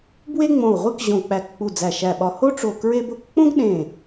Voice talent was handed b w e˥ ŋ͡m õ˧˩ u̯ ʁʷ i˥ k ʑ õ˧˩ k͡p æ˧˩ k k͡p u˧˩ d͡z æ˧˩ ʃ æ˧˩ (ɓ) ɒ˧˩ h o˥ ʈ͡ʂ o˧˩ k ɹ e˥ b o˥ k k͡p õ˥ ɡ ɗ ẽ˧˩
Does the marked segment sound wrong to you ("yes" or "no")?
no